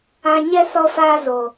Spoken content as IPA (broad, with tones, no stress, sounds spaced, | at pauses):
ã˧ ɲ ɛ˦ s ɔ˧ f aː˧ z o˨